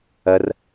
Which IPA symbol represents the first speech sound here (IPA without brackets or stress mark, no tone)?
ɐ